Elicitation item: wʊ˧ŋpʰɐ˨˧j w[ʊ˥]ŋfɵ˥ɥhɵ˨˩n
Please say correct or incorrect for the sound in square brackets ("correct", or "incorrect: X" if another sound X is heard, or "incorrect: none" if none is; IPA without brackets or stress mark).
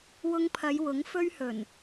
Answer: incorrect: ʊ˨˥